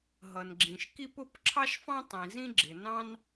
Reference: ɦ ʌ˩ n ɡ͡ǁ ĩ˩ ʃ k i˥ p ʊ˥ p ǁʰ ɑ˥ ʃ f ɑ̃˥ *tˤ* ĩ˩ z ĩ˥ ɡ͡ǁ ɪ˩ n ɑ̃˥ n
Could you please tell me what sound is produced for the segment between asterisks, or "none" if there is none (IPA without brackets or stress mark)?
tˤ